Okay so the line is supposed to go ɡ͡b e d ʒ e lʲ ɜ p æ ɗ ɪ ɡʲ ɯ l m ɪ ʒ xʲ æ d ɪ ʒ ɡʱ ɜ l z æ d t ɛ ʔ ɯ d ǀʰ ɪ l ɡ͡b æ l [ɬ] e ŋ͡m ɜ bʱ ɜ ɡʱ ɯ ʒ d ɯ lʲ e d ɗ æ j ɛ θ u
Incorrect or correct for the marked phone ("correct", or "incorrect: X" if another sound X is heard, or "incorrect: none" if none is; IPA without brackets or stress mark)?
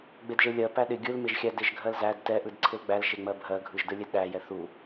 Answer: incorrect: ʃ